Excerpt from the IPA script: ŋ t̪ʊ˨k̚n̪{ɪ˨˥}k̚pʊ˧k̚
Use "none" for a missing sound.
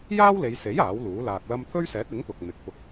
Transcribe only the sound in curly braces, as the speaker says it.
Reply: ɪ˨˥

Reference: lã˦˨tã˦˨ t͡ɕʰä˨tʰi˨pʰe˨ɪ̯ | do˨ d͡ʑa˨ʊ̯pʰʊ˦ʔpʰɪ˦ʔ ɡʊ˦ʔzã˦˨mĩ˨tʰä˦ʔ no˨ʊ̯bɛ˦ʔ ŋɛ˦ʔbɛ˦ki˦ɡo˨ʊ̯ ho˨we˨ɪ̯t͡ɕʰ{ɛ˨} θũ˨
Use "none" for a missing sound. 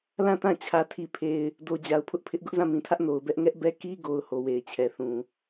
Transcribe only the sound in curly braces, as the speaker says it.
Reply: ɛ˨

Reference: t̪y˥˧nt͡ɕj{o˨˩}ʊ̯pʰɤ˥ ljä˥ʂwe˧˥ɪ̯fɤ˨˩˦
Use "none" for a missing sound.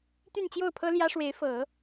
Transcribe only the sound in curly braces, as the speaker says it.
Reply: o˥˩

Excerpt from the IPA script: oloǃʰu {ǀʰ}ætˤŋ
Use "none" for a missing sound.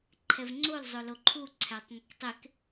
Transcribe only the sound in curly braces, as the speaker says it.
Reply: ǀʰ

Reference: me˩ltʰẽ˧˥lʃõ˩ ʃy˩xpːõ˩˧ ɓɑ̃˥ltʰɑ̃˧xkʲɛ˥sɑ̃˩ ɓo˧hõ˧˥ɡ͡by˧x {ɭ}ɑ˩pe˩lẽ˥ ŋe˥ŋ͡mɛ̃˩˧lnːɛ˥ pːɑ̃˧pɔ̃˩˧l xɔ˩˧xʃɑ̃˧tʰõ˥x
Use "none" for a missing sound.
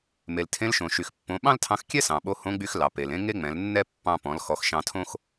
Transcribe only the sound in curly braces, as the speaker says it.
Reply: l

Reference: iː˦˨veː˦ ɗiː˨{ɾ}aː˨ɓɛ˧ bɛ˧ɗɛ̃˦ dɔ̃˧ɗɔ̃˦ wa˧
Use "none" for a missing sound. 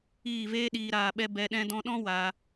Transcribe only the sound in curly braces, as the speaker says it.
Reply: ɾ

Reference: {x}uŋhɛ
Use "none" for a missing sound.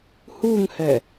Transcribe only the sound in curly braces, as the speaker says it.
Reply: h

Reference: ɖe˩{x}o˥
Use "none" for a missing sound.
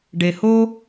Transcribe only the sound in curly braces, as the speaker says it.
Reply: h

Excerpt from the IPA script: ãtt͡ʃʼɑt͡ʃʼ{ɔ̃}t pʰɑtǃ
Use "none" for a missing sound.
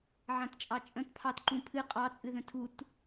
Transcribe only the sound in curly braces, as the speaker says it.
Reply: ə̃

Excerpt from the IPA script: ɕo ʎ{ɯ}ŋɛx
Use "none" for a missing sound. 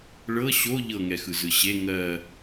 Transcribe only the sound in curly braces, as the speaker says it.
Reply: ɤ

